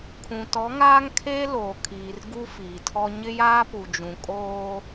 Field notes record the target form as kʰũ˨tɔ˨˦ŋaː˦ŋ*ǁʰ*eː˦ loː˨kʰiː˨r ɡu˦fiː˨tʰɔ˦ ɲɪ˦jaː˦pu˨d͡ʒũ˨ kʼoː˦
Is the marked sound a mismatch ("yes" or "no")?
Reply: yes